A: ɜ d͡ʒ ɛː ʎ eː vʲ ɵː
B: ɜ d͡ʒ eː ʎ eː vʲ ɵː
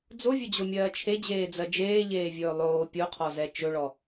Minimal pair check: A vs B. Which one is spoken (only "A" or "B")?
B